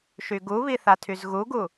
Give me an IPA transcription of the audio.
ʃ y ɡ u β i θ a tʰ y z ɣ u ɡ u

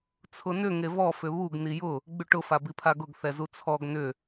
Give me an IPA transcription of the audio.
t͡sʰ ʊ n ʏ ŋ e v ɔ f ʏ β u ɡ n i j ʊ | ɡ͡b y ʈ ʊ f a b i pʰ a ɡ ʊ ɡ θ ɛ z u t͡sʰ ɔ ɡ n ʏ

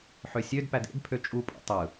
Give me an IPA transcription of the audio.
ħ ø sʲ ø d p æ d ḛ d pʰ ø t͡ʃʼ u pʼ ṵ tˤ ɯ

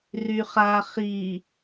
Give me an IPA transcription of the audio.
r y χ a χ i

